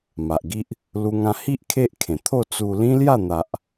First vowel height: low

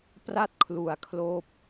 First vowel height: low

